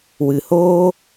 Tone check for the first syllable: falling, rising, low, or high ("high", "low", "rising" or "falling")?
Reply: low